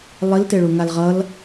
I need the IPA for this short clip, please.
lˠ i l t e ɭ u ŋ a l ʁ ʌ l

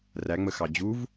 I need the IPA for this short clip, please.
r æ ŋ͡m ə x ɑ d͡ʑ u v

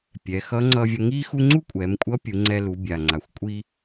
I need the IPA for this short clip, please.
pʲ ɛ˩˧ x ʌ˧˥ ŋ͡ǀ ʌ˧ vʲ ʌ˧ ŋ i˥ x u˥ ŋ͡ǀ u˥ kʷʼ ɛ˩˧ m kʷʼ ʌ˧˥ pʲ u˩˧ ŋ͡ǀ ɛ˧ l u˩˧ bʲ a˩ ŋ͡ǀ a˩ xʷ kʷʼ i˧

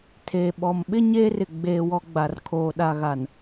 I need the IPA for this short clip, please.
tʰ eː˨ ɓ ɔ˨ m ɓ ɪ˦ ɲ eː˦ r ɪ˨ ɡ͡b eː˨ w ɔ˨ ɡ͡b a˨ r kʰ oː˨ ɗ a˨ ɣ a˨ n

